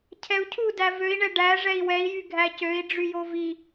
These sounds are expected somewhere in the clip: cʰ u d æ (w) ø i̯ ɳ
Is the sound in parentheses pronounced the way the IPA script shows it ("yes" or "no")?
no